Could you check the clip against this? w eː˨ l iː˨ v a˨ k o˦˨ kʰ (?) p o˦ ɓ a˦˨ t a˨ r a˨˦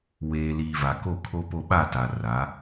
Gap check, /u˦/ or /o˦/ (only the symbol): o˦